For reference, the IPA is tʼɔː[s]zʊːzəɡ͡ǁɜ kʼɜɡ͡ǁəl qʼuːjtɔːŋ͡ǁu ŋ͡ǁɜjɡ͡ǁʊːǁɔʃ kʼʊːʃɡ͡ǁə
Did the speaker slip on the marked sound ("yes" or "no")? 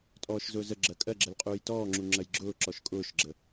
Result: yes